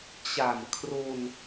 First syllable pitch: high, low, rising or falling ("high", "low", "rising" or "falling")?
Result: low